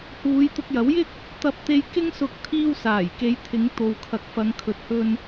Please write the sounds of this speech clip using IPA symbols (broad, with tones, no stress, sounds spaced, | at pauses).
h uː˨˧ j t̪ ʊ˧ k̚ j ɐ˨˥ w j ɪ˥ k̚ | t̪ ɐ˧ p̚ t̪ e˧ j k ɪ˥ ŋ s ʊ˧ k̚ t̪ʰ iː˧ w s aː˨˩ j k e˨˧ j t̪ʰ ɪ˨˧ ŋ t̪ o˨ w kʰ ɐ˨˥ k̚ f ɐ˨˧ ŋ kʰ ɵ˨˥ t̚ h ɵ˧ n